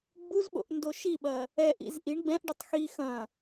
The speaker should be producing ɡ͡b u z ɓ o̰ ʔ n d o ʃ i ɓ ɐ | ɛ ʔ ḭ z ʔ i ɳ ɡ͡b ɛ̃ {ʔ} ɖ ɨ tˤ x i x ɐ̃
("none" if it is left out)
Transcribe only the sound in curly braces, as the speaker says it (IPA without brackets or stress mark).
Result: ʔ